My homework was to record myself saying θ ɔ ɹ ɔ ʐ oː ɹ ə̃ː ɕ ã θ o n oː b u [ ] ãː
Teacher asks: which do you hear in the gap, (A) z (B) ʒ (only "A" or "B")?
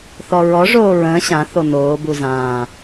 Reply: A